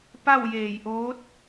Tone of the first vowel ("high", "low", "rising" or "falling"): falling